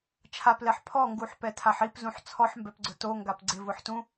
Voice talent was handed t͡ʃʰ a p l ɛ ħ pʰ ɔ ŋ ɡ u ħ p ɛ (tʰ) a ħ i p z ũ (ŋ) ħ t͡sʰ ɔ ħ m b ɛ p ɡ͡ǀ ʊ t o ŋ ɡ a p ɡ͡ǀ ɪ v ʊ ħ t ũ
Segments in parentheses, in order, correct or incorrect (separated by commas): correct, incorrect